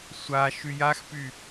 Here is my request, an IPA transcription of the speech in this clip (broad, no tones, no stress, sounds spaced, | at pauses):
sʷ a ʃ y j a x p y